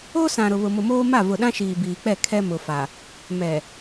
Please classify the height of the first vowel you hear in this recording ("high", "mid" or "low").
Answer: mid